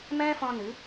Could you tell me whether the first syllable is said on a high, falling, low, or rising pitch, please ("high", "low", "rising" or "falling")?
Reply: high